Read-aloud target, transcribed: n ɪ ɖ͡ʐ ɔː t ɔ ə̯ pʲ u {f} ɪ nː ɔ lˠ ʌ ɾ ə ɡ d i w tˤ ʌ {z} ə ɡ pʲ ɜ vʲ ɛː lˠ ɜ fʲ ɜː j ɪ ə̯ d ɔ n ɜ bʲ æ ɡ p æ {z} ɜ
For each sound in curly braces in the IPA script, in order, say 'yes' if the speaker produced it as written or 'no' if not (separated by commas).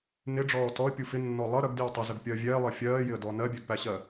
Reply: yes, yes, no